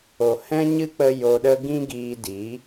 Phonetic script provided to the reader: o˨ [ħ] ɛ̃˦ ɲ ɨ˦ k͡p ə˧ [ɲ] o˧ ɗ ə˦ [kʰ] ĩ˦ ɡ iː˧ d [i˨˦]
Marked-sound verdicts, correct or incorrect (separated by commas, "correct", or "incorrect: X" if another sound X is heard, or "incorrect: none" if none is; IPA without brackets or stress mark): incorrect: h, incorrect: j, incorrect: ɡ, correct